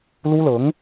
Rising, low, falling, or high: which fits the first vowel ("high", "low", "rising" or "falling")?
high